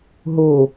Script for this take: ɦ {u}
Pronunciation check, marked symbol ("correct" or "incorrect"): incorrect